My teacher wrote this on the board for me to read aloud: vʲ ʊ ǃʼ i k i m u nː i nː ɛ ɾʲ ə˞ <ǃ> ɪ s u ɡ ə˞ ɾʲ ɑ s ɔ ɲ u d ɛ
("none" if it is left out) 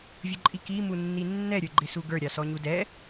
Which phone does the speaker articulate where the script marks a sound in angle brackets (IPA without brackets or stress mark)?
ɡ͡ǃ